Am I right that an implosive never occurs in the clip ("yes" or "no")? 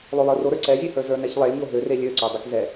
yes